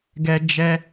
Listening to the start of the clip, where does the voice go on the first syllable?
high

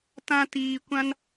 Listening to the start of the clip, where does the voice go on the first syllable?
high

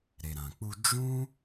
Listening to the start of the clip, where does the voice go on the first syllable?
low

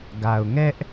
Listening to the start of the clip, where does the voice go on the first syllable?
low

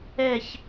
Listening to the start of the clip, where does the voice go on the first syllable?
falling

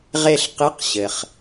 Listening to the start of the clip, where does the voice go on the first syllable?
falling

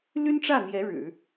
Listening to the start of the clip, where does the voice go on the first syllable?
high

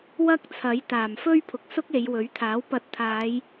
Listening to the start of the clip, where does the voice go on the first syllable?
high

